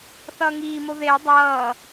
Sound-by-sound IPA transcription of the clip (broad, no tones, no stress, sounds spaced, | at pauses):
θ ʌː ŋ iː m o ð e dˤ ʌː